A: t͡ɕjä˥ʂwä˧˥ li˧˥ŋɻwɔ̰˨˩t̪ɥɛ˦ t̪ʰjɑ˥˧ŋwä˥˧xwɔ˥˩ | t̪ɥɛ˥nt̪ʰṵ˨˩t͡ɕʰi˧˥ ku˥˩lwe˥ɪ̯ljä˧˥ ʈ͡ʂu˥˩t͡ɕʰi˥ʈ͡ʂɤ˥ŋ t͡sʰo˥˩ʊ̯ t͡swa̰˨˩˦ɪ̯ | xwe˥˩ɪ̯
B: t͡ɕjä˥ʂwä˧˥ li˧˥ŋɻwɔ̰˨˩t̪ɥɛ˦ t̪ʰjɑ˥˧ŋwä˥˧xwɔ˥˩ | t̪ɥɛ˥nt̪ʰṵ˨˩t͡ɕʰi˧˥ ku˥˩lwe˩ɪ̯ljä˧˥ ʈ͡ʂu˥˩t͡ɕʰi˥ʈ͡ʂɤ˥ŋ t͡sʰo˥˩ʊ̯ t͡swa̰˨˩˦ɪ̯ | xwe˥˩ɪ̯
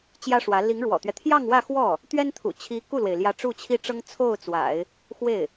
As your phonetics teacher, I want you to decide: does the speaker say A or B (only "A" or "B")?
B